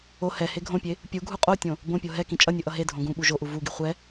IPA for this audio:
o h ɛ h e ɡʱ õ pʲ e | pʲ u ɡʱ u qʼ o tʲ õ | b õ pʲ o ɦ ɛ k ĩ t͡ʃʼ ʌ nʲ ɯ ʔ ʌ ɦ e dʱ õ ɡ ũ ɓ u ʒ o ʔ u v u ɡ i χʷ ɛ

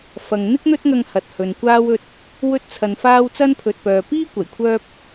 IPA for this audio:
f ɐ˨ ŋ n̪ ɪ˥ k̚ n̪ ɵ˥ t̚ ŋ ɐ˧ ŋ h ɐ˨ t̚ h ɵ˨ n kʷ aː˥ w ɵ˥ t̚ | w ɵ˥ t̚ t͡sʰ ɐ˨ n f aː˥ w t͡s ɐ˥ n pʰ ɵ˨ t̚ p œː˨ p iː˥ kʷ ɐ˨˩ j kʷʰ œː˥ p̚

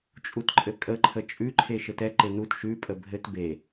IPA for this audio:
t͡ʃʼ u t ǃʼ ɘ kʼ ə ǃʰ ə t͡ʃʼ ʉ ǃʰ e ʃ ɘ t ɛ ǃ e n u t ʃ ʉ pʼ ə bʱ ɘ t b e

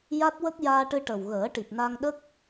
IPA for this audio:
j a˦˥ t̚ w ə˦˥ k̚ j aː˧ ʈ ɨ˧ ʈ ə˨˩ w ɣ əː˨˩˦ ʈ i˨˩ p̚ n a˧ ŋ ɗ ə˦˥ k̚

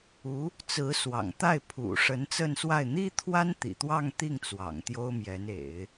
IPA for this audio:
u˧˥ | t͡s ɹ̩˧˥ s w ɑ̰˨˩ ŋ t̪ a˥˩ ɪ̯ pʰ ṵ˨˩ ʂ ə˧˥ n t͡s ə˥˧ n s w a˥˩ ɪ̯ n̪ i˥ t̪ʰ w a˥ n t̪ ḭ˨˩ t̪ w ɑ˥˧ ŋ t̪ i˥˩ ŋ t͡s w ɑ̰˨˩ ŋ t̪ j o˥ ʊ̯ m j ɛ˧˥ n ḛ˨˩˦ ɪ̯

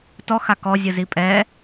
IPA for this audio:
t ɔ x a k ɔ zʲ ɯ z i pʼ ɛ

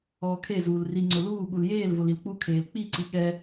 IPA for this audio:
ɔː kʰ e z uː l r i ŋ͡ǀ ʊ l uː ɠ u l j eː l v o l i l k͡p u kʰ eː l k͡p i ǀ i ɠ ɛ

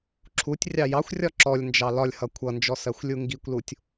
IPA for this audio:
ǁʰ u tʲ rʲ ɑ j ɑ xʷ rʲ ɒ ǁ ɔ lʲ n d͡ʒ ɑ l ɒ lʲ h ʌ kʷʰ ʌ n d͡ʒ ɔ s ɜ xʷ lʲ u ŋ ɡ i kʷ l u tʲ

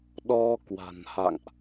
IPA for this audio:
ɗ ɔ˧ k w a̤˨˩ n h a̰˧˨ ŋ ʔ

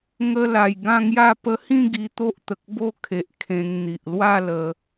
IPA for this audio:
ŋ ə˧ l a˨˩ j ɡ ã˥˧ ŋ j a˥˧ p ə˦ h ĩ˥˧ ɡ i˧ t̪ o˦ ʔ t̪ ə˨ k̚ b o˥˧ kʰ e˨ ʔ kʰ ẽ˧ ŋ n̪ i˨ ʔ l w a˥˧ l ə˧

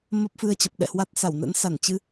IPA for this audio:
m ə˦˥ p̚ f ɨ˧ ə̯ t͡ɕ ə˨˩ p̚ ɗ ɛ̰˧˨ h w a˦˥ t̚ s a˧˩ w n ə̰˧˥ n s a˧˩ n t͡ɕ ɨ˧

